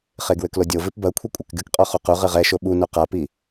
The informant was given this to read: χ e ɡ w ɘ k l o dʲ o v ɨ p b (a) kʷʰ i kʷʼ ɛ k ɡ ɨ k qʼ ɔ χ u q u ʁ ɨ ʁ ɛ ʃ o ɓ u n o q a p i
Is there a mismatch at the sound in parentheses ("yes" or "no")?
yes